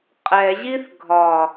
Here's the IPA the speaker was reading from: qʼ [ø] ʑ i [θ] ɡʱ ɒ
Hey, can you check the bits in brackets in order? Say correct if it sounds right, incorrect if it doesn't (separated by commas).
incorrect, correct